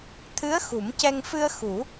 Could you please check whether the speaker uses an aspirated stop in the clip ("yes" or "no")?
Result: yes